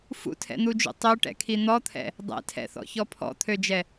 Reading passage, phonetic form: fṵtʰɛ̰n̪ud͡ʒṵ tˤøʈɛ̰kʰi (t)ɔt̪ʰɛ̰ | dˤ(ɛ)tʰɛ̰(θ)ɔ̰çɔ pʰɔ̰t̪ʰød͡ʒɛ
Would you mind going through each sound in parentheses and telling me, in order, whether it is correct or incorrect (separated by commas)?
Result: incorrect, incorrect, correct